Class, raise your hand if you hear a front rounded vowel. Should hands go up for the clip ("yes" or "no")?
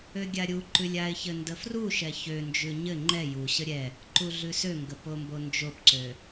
yes